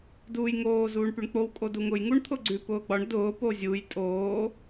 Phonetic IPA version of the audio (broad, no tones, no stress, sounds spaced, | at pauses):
d uː j ŋ oː z uː ɳ p y ɳ k͡p o w kʼ o d u ŋ ʊ j ŋ u ɳ t̪ʰ ʊ ɡ͡ǀ ʉ p ʊː ɡ͡b ɒ ɳ d ʊː p o zʲ u j tʼ oː